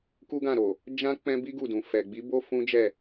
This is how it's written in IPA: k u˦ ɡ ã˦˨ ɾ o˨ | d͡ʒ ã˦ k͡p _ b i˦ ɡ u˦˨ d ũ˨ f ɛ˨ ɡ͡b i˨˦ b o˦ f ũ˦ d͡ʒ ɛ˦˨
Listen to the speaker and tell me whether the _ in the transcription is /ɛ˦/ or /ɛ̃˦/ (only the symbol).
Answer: ɛ̃˦